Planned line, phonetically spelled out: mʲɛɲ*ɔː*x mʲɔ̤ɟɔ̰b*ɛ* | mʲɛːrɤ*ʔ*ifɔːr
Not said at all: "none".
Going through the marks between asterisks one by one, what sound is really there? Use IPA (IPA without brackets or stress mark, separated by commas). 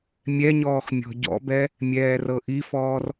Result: ɔː, ɛ, ʔ